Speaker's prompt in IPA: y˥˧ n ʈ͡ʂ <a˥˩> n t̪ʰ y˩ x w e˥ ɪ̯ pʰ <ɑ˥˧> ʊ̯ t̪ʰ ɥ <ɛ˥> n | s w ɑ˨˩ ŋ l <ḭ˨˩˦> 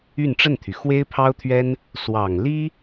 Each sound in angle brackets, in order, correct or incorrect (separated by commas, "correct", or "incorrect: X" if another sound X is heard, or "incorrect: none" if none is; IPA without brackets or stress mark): incorrect: ə˥˩, incorrect: ɑ˥, correct, incorrect: i˥